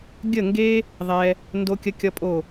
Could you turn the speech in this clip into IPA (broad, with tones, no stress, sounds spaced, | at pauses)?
ɡʲ ə˥˨ ŋ ɡ e˥ | ðˤ ɛ˥ | n d o˥ kʲ ə˥ kʲ ʌ˥ pʼ o˥˨